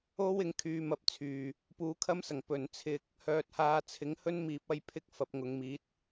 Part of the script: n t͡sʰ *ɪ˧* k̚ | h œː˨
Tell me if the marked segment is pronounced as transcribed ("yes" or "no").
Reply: yes